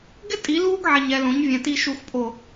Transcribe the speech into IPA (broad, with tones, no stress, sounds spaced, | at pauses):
ɡ ɪ˦ tʼ i˨˦ l uː˦ ɡ ʕ ɛ˨ ɲ ɛ˨ l õ˨˦ ɲ vʲ ɛ̃˨ t i˧ ʃ u˨ x pʼ o˨